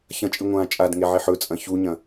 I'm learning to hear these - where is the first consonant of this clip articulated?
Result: palate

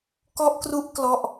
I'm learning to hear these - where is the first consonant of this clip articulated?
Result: velum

